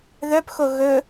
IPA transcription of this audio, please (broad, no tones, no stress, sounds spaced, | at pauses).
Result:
ð œ p x o ɣ ɵ